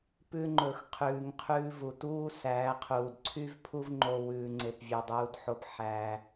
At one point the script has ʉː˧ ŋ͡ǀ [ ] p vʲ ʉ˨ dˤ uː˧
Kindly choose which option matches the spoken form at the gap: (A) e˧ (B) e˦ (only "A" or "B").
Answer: A